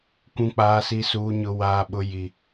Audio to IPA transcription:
kʷ ũ˨ k͡p aː˨ s i˨ s uː˨ ɲ ʊ˨ w aː˨ ɓ ʊ˨ j i˨

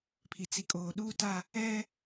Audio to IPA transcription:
pʰ i˨ t͡s i˨ kʼ oː˨ ɗ uː˦˨ t a˦˨ | ɛ˦

